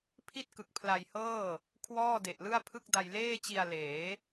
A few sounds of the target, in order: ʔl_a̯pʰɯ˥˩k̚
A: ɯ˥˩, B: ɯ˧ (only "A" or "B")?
A